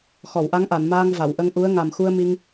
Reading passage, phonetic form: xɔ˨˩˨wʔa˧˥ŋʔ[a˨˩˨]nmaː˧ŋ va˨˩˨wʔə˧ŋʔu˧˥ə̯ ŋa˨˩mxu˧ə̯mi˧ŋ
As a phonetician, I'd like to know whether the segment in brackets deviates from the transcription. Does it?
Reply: no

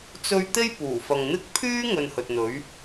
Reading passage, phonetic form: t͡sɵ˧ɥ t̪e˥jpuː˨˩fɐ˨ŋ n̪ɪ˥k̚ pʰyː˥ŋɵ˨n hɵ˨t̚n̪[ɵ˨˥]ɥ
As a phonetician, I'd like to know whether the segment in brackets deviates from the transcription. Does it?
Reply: no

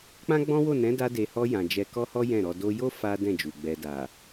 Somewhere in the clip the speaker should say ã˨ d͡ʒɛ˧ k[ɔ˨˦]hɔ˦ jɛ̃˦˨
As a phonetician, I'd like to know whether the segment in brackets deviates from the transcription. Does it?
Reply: yes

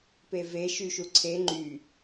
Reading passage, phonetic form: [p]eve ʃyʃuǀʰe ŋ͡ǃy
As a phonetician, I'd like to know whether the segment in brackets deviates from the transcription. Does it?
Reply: no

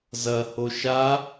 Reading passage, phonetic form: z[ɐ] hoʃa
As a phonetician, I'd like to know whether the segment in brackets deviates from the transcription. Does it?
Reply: no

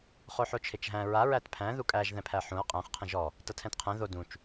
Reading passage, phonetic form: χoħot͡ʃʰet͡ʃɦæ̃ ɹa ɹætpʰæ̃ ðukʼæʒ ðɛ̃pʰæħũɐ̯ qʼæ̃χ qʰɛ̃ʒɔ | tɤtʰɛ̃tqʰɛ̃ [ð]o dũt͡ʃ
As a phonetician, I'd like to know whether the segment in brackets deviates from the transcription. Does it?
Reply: no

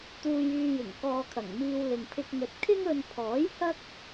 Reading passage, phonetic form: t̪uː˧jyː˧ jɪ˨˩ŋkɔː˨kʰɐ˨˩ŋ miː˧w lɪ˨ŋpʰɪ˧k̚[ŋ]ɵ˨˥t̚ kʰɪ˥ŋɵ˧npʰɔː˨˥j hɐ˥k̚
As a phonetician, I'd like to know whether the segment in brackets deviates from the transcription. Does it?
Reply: no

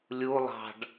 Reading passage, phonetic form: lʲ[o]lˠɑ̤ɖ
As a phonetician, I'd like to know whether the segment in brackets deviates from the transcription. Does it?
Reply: yes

